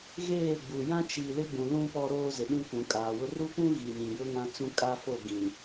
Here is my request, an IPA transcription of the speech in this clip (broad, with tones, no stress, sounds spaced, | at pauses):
ɣ eː˦˨ ɡ͡b u˨ j ã˦ t͡ʃ i˨ l ɪ˦ ɡ͡b ũ˨ l ũ˦ p ɔ˦ ɾ oː˦ z ɪ˨ ɗ ĩ˦ kʷ ũ˨ kʼ aː˨ w ʊ˦ r u˦ kʷ ũ˦ ɣ i˨ ɲ ĩ˨ j ʊ˦ ŋ ã˦ t͡s ũ˦ kʼ a˦ f o˦˨ ɡ ĩ˨